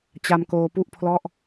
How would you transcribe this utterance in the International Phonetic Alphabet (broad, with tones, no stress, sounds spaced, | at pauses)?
t͡ɕ a˧ m k oː˧ p u˥˩ ʔ pʰ l ɔ˥˩ ʔ